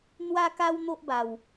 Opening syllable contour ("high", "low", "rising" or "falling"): high